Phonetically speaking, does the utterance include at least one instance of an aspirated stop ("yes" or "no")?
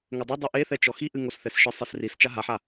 no